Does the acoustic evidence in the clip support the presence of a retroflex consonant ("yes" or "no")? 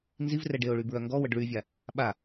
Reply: yes